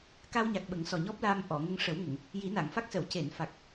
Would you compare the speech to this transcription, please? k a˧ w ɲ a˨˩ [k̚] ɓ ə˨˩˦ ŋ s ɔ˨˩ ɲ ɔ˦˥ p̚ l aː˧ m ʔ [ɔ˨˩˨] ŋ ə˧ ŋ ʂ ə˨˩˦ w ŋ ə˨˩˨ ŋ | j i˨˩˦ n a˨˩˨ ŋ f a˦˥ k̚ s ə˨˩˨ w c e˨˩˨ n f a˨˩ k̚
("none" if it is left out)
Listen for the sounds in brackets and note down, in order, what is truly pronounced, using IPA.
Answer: k̚, ɔ˨˩˨

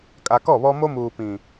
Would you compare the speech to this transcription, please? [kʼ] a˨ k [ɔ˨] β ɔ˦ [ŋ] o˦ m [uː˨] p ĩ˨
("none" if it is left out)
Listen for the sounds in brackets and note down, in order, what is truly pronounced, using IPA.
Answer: kʼ, ɔ˦˨, m, uː˨

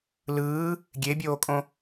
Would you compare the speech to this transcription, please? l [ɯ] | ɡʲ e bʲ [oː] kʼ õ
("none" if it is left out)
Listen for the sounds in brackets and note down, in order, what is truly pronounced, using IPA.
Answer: ɯː, oː

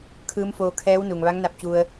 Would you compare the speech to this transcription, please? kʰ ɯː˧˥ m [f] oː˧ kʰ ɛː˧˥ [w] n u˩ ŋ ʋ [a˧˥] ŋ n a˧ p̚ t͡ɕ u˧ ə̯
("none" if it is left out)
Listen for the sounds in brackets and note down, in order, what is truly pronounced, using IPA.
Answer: f, w, a˧˥

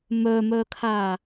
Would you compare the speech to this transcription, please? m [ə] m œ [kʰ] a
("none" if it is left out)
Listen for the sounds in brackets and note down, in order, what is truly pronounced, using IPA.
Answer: œ, kʰ

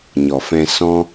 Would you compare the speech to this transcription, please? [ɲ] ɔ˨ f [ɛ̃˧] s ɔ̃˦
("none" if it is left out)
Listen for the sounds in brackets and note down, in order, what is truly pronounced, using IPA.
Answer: ɲ, ɛ̃˧

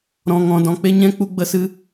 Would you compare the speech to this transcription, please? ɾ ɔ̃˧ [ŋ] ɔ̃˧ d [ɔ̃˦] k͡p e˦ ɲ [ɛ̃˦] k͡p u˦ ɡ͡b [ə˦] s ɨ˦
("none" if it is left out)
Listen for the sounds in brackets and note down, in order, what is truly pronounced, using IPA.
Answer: ŋ, ɔ̃˧, ɛ̃˦, ə˦

